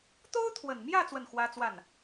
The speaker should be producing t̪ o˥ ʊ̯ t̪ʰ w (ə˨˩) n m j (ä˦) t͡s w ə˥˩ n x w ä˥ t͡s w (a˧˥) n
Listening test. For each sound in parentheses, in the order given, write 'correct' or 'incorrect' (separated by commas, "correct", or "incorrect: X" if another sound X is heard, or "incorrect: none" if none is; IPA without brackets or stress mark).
correct, incorrect: ä˥˧, incorrect: a˥˩